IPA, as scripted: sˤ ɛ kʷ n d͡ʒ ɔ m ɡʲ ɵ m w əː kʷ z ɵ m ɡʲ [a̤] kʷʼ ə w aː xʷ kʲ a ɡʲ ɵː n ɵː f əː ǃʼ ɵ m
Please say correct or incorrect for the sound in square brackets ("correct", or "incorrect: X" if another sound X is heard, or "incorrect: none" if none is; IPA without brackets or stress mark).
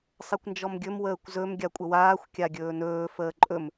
incorrect: a